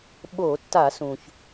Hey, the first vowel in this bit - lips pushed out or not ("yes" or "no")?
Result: yes